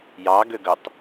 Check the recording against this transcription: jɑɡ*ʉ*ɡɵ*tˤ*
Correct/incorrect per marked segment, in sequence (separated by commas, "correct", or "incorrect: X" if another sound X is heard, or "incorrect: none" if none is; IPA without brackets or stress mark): incorrect: ø, correct